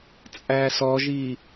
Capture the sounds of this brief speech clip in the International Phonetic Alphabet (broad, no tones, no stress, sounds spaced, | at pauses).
t͡sʼ æ s ɔ ʒ i